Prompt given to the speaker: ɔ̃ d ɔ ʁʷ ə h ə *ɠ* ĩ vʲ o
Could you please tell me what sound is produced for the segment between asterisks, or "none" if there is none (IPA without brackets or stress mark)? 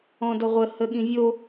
ɠ